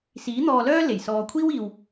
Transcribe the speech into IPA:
s iː˨˥ n̪ ɔː˧ l œː˥ l e˨˩ j s ɔː˧ kʷʰ iː˥ w iː˨ w

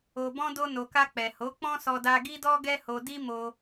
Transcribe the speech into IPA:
o˨ b ɔ̃˧ d o˧ n o˨ k a˧ k͡p ɛ˨ h o˨˦ k͡p ɔ̃˦ s ɔ˧ d a˧ ɡ i˦ d ɔ˦ ɡ ɛ˦ h o˧ d i˦ m o˧

